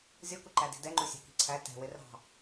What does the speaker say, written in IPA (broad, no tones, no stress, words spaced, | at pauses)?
zʲɔkuǃæ di̤dɛŋ͡ǃusʲɑ̤ ki̤ǀʰæ tɛ̤wɪ rɑ̤